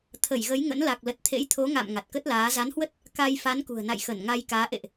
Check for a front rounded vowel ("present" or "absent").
absent